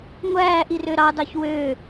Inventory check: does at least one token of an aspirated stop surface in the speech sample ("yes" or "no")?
no